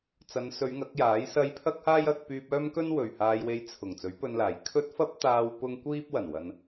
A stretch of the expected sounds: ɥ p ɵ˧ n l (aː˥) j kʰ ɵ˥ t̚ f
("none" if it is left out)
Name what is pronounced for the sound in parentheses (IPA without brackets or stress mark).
aː˨˩